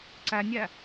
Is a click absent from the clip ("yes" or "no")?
no